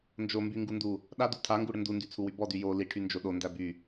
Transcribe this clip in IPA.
n d͡ʒ o m b y ŋ ɡ u n d u | ɗ a d u tʰ a ŋ ɡ u ɽ ə n d u n d y t͡sʰ u w y b ɔ d y j o l i ʈʰ y n d͡ʒ o ɗ o n d æ b y

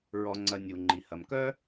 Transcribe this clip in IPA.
ɹ ɔ˧ ŋ͡ǀ ɐ˧ nʲ u˩ ŋ͡ǃ i˩ h ɐ˩ m k œ˥

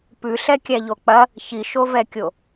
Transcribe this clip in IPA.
p ʉ ɬ ɛ kʲ æ ʎ o k͡p ɐ | ç i ʃ o v ɛ kʲ o

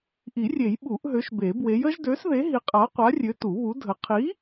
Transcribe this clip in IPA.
ʔ i˨˩˦ rʲ e˨˩˦ j ɓ u˨˩˦ ʔ ɦ ø˨˥ ʃ b e˨˩˦ b w e˨˥ j ə˨˥ ʒ d ø˨˥ s ð e˨˥ ɦ i˨˥ qʼ a˨˥ qʷ a˨˥ rʲ ø˨˥ t u˨˩˦ β u˨˥ dʱ ə˨˥ qʰ i˨˥

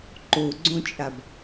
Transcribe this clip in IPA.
ǃ o ɡ͡ǀ õ t͡ʃʼ a b

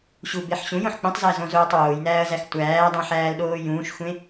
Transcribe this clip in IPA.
ɕ u b e ħ ɕ ũ j õ ħ k͡p ũ tˤ z æ z õ z oː tˤ w oː j n æː ɐ̯ z æ x tʷ æː dˤ õ ħ æː l ɗ oː j ũː ʃ xʷ ẽ

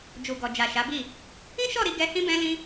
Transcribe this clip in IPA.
d͡ʒ u˨ ɡ ɔ˨ d͡ʒ a˨ ʃ a˨˦ b i˦˨ | ĩ˦ ʃ ɔ˦˨ ɾ i˧ ɡ ɛ˦ h ĩ˦ b ɛ̃˦ l ĩ˦

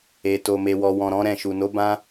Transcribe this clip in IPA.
e˨ t o˨ m e˨ w ɔ˨ w ɔ̃˨ ɾ ɔ̃˨˦ ɾ ɛ̃˦˨ ʃ u˨ n o˨˦ b ã˧

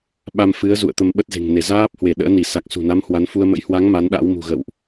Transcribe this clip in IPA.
ɓ a˧ m f ɨ˨˦ ə̯ z ṵ˧˨ ə̯ t̪ ə˧ m ɓ ə˦˥ t̚ z e̤˨˩ ŋ n e˧˩ z aː˦˥ p̚ h w e˧˩ ɗ ə̰ː˧˥ n i˧˩ s a˨˩ k̚ s ṳ˨˩ n a˨˦ m h w a˨˦ n f u˧ ə̯ m ə̰˧˥ j h w a˨˦ ŋ m a˨˦ n ɗ a̰˧˥ w m ṳ˨˩ ɣ ə̰˧˨ w ʔ

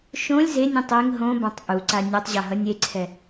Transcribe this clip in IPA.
ʃ õ lʲ z e nʲ ũ tˤ e ŋ ɦ õ b ã tˤ ʔ u ǀ a nʲ ʌ tˤ ʑ a ɦ ʌ nʲ e ǀʰ ɛ

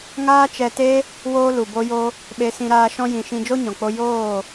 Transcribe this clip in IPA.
ŋ aː˦ t͡ʃ ɛ˧ t e˦ | w oː˦ l u˨ b o˦ j o˦ | ɓ e˧ s ĩ˧ ɾ aː˧ ʃ ɔ̃˦ j ĩ˧ ʃ ĩ˦ d͡ʒ o˦ ɲ ɔ̃˨ k͡p o˧ j oː˦˨

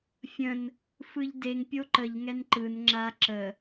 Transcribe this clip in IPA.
fʲ ə̃ n | f ɯ ʎ d e ŋ pʲ o ǃ ə ʎ ŋ ɛ n ǃ ɯ n ŋ͡ǁ a ǁ ə

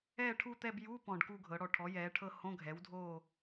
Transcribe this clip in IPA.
ɛː˦˨ ʈʰ u˦˨ t̪ ɛ˦˨ b j u˧˥˧ p ɔ̃˨˩ ɖ k u˦˨ ɡʱ ɤ˩˧ ɽ ɔ˨˩ ʈʰ ɔ˩˥ j ɛː˩˧ ʈʰ ɤ˦˨ h õ˧˥˧ ɡʱ ɛ˩˥ w dʱ oː˦˨

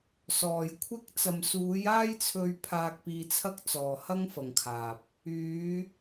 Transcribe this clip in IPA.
s ɔː˨ j kʷʰ ɪ˥ k̚ t͡s ɐ˨ m s uː˨˧ j aː˥ j t͡sʰ ɵ˧ ɥ pʰ aː˧ k̚ p iː˧ t͡sʰ ɐ˥ k̚ t͡s ɔː˨ h ɐ˥ ŋ f ɐ˨ ŋ kʰ aː˨ p̚ | yː˨˧

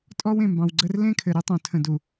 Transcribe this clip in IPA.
tʼ ɔ˦ w ẽ˨ m b ɑ̃˨ w ɡ͡ǀ ə˦ r l ẽ˦ kʰ ɘ˨ ɾ ɘ˦ tˤ õ˨ tʰ ə̃˨ d u˨

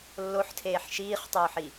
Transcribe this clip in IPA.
lː o ħ tʰ eː ħ ʃ iː χ tˤ oː ħ i

